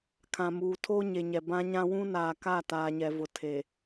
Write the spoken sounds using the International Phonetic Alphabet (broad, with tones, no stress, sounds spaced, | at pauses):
kʰ ã˨ m uː˨ tʰ oː˦ ɲ e˨ ɲ ɛ˨ b ã˦ ɲ ã˦ w ũ˦ n aː˨ k a˦˨ t aː˨ ɲ ɛ˨ v ʊ˨ tʰ e˨